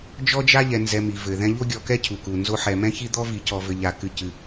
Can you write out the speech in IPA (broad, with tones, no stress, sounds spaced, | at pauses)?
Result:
d͡ʒ ɔ˥ d͡ʒ a˥ ʎ ɛ˨ n z ɛ˨ m i˩ v ɘ˩ ð ɛ̃˦ ʎ o˥ ɡʲ ɔ˨ k ɛ˥ cʰ u˩ k u˩ n z o˥ ħ ɛ˨ m ɛ̃˥ ç i˥ d̪ ɔ˥ v i˨ c ɔ˨ v ɘ˨ ʎ a˨ k ɨ˨ c ɨ˨